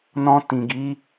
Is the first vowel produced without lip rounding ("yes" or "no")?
no